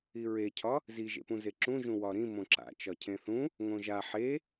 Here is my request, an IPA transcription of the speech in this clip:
iɹecʰɒ | ziʒḛpũze ǁũʒũ wɒɾĩ mõǁa̰ t͡ʃɒcʰẽθũ | ŋõʒa ħe

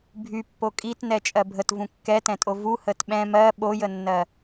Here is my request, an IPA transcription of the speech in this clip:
bʱypːo kʼitnɛ t͡ʃʼɜbʱət vũkːɛtɛ̃tʼo vu hətɓɛ̃ mɜ ɓojənːɜ

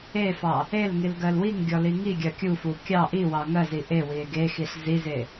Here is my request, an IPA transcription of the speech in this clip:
efɑ | el ŋilɡɜlwiŋɡʲɔ liŋiɡʲɜ kʲufu kʲɑ ʔiwɑ ŋɜzi ʔe wie̯ɡexiɬ zize

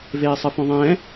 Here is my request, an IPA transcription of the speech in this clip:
veːsˤɯfõðˤɛ̃ː

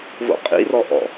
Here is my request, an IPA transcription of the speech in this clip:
vo̰qʼḭrɔ ʔɔ̰

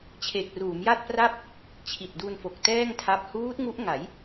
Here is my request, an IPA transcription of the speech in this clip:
t͡ɕʰe˨˩k̚ruː˩˦mja˥˩t̚pra˥˩p̚ | t͡ɕʰi˨˩t̚du˧nfo˨˩k̚ tɛː˥˩ŋtʰa˦˥p̚ huː˦˥t̚ŋu˦˥ʔŋa˩˦j

